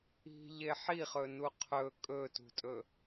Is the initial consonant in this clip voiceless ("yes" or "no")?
no